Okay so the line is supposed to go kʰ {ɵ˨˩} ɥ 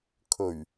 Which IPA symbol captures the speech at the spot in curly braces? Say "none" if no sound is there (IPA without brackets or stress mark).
ɵ˨˩